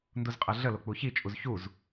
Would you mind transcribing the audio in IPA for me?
n d u z qʼ ɜ ɮ ə l o k͡p u ç i t͡ʃʼ u z ç u z

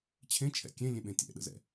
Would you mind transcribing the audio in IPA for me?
t͡ɕʰ ẽ t͡ʃʰ ɛ̰ kʲ ẽ lʲ ẽ ɓ ẽ tʲ ɛ̰ ɗ ə̰ z ɛ̰

